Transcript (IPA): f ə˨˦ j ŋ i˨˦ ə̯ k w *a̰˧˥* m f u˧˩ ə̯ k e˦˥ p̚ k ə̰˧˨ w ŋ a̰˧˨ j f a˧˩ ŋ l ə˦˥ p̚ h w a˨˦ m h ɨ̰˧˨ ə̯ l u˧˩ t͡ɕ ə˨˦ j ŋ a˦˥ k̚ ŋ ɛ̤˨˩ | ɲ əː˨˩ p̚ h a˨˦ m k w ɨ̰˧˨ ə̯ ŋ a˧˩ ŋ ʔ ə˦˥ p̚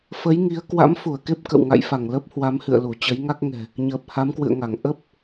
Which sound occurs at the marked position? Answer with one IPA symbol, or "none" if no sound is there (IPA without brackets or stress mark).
a̰˧˥